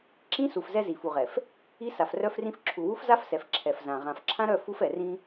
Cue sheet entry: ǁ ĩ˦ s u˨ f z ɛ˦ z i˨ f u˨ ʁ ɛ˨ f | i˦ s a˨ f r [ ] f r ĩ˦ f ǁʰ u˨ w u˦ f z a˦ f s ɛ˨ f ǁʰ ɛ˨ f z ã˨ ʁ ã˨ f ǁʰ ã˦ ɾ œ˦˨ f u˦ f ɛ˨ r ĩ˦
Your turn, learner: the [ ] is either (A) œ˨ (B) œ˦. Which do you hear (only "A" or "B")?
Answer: B